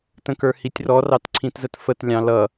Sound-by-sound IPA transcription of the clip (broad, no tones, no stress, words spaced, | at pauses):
tə̃kə˞hitʲrɔ rɑtǀʰĩtzətfət lʲɑ̃lʌ